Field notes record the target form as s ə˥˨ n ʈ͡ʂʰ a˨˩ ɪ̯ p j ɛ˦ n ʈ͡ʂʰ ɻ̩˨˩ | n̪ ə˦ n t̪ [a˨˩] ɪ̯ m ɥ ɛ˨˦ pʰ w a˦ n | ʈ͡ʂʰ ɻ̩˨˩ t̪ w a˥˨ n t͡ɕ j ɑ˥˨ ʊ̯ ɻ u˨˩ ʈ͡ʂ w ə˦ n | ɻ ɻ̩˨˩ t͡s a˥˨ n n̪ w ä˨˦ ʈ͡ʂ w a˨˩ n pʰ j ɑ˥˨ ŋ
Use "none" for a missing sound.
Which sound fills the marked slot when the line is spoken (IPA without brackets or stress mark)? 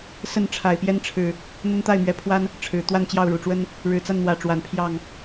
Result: a˥˨